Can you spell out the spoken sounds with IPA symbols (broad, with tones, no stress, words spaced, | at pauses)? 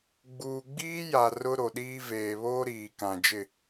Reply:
ɡ͡buː˨ɡ͡biː˦ja˨ rʊ˦ ɾo˨ɗiː˦ veː˨βoː˦ɾiː˨ kã˨d͡ʒɪ˦˨